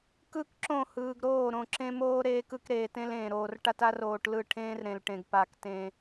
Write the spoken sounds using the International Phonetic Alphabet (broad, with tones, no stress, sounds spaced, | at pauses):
k ɯ˦ k ǁ õ˦˨ h ɯː˨ ɡ ɾ oː˦˨ ɾ õ˨ ǁ ẽ˦ m oː˦ ɾ eː˦ k ɯ˦ k ɾ eː˨ t ẽ˦ l ẽː˨ ɾ oː˨ r ʈ a˦ t a˦ r oː˨ ʈ l ɯ˦˨ ʈʰ ẽː˦ r ɾ ẽ˨ l ʈ ẽ˨ ɡ p a˦ k t ẽ˦